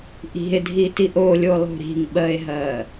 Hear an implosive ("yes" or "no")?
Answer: yes